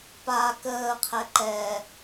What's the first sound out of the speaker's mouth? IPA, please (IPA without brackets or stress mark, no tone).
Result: p